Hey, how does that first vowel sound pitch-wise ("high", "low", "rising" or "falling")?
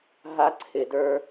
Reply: high